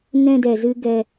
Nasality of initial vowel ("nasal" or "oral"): nasal